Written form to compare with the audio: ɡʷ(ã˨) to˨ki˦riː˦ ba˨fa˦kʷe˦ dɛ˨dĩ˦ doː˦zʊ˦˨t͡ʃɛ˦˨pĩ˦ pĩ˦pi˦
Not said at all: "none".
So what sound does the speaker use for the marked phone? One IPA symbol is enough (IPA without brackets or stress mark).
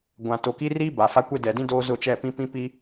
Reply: ã˨